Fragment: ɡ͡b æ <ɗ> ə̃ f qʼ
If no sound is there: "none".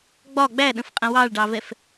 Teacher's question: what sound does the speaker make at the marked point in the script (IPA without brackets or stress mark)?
ɗ